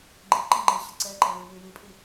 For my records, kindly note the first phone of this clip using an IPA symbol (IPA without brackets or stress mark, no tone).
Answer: ɡ͡ǃ